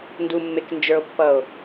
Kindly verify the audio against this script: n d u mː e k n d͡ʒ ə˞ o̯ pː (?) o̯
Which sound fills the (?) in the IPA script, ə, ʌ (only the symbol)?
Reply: ʌ